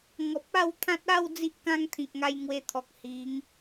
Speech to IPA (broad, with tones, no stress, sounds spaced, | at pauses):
ŋ ɔ˨ p̚ a˥˧ w t̪ʰ ã˦ t̚ a˥˧ w d͡z i˦ ʔ k ã˦ ŋ t̪ʰ ĩ˨ k̚ ŋ a˧ j ŋ w e˧ t̪ʰ ɔ˨ k̚ h i˨˦ ŋ